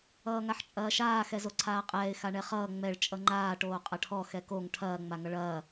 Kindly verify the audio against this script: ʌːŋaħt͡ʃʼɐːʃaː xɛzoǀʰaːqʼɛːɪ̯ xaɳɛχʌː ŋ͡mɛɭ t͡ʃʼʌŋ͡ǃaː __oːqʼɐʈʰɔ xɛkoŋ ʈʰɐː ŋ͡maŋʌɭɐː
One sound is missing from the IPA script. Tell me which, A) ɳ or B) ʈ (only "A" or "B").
B